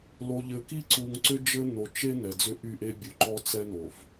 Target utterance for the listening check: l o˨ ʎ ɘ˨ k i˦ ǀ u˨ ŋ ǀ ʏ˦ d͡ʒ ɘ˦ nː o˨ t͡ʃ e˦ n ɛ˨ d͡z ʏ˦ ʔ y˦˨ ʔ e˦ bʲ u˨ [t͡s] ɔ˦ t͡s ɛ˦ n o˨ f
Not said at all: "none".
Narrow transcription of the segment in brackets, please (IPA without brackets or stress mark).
ǃ